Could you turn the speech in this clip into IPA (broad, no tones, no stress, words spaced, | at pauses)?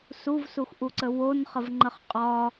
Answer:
suvsuxʔuǀə wonχəvŋ͡ǃəχ qʼɒ